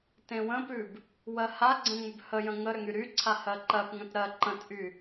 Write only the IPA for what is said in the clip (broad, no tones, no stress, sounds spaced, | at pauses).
t ẽ w ə̃ p ʉ b | w ɜ h a ɡ͡ǀ ə̃ ŋ͡m ʏ b h ə j ə̃ ŋ ə ɾ ʏ ŋ y ɾ y ǀʰ a h ɜ ǃ ɜ p ŋ ə̃ t ɾ ɜ ǃ ə̃ t ʔ y